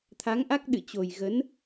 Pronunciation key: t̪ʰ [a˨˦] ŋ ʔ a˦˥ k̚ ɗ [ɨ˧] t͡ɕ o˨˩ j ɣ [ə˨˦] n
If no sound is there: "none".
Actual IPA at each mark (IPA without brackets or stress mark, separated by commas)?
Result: a˨˦, ɨ̰˧˨, ə˨˦